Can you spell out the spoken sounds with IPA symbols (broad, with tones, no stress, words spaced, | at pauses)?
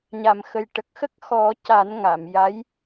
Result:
ɲa˨˩˨mxə˨˩jʈə˨˩k̚xə˦˥k̚ xɔ˨˩˦ ca˨˩˦nŋa˨˩˨mja˧˥j